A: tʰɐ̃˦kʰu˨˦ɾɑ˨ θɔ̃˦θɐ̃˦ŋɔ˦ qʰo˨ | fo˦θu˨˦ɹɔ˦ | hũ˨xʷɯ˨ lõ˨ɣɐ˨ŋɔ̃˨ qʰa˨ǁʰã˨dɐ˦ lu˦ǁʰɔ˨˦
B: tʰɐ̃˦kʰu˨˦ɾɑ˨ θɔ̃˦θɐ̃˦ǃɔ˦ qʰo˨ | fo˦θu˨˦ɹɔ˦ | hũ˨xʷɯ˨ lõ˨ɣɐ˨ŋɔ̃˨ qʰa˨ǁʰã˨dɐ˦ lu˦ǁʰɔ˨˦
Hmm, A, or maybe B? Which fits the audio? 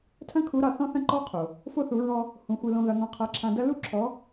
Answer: B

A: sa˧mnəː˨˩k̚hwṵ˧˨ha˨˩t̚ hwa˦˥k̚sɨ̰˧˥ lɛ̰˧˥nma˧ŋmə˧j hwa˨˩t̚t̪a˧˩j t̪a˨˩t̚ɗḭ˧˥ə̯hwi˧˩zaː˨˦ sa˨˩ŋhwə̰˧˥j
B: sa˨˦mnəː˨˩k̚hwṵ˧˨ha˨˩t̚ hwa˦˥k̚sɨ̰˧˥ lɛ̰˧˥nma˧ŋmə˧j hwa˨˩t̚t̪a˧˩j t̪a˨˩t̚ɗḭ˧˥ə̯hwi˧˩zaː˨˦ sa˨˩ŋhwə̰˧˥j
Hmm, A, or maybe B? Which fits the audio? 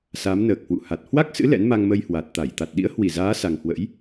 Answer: B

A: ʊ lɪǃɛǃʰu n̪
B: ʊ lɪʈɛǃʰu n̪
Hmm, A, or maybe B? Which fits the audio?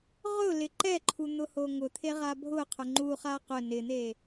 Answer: A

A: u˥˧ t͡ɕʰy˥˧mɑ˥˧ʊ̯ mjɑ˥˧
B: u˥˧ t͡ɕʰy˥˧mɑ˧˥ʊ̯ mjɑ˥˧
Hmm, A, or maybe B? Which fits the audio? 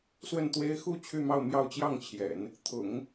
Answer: A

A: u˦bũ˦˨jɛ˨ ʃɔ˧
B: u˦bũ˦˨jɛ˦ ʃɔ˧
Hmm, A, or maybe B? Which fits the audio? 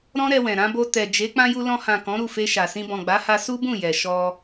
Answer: A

